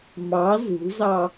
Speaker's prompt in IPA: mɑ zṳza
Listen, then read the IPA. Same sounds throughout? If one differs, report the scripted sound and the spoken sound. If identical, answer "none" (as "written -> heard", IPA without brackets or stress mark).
a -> ɑ